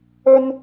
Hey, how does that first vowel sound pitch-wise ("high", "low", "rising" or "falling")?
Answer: high